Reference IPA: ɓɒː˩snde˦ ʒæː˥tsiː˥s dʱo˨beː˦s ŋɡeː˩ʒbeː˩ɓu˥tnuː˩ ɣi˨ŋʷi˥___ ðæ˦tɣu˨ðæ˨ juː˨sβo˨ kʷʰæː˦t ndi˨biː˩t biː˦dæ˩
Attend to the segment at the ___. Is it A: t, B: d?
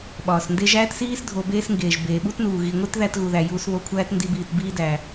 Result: A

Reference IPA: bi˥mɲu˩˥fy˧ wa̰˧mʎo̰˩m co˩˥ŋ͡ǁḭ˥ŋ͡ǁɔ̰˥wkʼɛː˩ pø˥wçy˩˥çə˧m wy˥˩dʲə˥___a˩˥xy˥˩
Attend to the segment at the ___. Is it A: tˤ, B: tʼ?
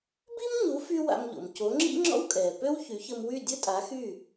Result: B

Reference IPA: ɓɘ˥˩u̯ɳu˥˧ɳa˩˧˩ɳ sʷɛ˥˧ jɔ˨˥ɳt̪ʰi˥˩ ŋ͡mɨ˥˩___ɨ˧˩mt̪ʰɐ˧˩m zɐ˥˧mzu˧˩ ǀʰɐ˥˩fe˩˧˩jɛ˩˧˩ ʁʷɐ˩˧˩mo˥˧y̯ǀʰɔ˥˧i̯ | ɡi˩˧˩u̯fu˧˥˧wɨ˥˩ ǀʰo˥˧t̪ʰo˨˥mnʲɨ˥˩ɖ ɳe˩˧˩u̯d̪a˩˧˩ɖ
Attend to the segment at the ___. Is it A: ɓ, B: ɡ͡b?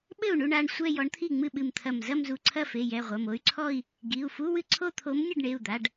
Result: A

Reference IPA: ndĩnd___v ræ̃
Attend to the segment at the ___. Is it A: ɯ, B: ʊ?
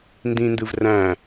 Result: A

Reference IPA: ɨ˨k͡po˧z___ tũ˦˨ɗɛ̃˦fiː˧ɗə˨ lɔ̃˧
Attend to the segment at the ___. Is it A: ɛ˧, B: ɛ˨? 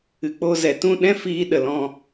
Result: B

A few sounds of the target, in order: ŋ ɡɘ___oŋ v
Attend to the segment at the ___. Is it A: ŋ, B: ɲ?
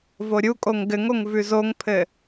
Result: A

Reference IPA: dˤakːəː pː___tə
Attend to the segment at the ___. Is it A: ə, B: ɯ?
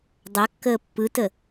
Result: B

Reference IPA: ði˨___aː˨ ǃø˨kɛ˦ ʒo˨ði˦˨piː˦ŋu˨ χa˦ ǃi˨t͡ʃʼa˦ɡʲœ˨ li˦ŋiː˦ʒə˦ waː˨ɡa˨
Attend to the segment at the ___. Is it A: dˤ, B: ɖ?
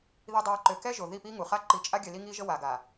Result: A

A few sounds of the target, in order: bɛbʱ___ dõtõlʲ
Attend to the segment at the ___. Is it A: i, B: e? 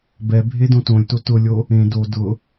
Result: B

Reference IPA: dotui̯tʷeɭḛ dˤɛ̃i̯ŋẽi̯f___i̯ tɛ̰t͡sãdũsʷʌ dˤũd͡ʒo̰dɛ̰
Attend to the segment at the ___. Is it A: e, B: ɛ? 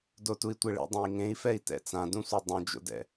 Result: B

